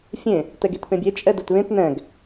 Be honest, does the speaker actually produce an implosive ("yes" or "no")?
no